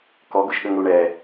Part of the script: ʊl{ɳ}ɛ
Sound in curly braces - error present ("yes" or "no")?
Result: no